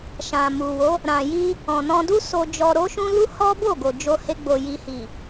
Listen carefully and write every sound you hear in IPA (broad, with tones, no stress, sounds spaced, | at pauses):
ʃ ã˨ m u˨ w o˨˦ | ɾ ã˨ j i˧ | ɔ̃˨ n ɔ̃˧ d u˦ s o˧ d͡ʒ ɔ˧ ɾ o˦ ʃ ũ˦ l u˦ h ɔ˦ b o˦˨ ɡ o˨ d͡ʒ o˧ h e˧ ɡ͡b o˨ j i˨ h i˨